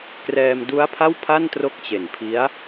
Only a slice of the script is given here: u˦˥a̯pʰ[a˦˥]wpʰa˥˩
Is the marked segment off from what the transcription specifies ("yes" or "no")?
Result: yes